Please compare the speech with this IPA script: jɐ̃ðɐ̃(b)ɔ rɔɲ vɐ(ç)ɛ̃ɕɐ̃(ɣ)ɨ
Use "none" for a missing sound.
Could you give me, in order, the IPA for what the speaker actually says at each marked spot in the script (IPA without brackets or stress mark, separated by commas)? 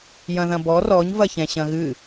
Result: b, ç, ɣ